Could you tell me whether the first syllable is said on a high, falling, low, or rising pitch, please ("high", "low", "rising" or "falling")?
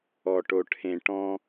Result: low